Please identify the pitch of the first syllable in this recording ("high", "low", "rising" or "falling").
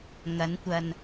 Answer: rising